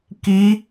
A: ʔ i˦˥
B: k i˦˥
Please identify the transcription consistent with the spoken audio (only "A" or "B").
B